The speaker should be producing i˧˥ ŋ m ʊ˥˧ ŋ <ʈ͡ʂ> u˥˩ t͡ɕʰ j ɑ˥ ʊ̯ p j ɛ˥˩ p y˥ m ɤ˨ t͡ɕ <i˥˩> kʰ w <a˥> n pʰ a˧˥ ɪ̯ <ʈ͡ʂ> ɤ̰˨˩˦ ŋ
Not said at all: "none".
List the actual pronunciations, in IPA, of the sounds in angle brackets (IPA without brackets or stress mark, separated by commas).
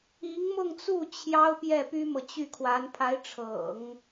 t͡s, y˥˩, a˧˥, ʈ͡ʂʰ